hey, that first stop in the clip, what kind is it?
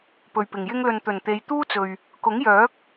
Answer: plain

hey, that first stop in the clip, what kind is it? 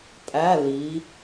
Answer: ejective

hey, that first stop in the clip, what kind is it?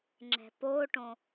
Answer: click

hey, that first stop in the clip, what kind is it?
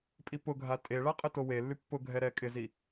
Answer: ejective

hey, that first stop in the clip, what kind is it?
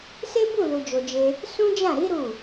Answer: plain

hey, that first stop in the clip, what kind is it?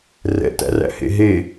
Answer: plain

